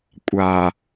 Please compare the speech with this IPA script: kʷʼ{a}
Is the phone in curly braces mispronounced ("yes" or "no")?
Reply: no